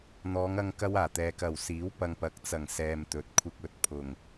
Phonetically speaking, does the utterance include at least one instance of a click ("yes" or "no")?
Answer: no